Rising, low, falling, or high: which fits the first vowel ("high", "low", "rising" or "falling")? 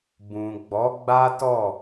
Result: low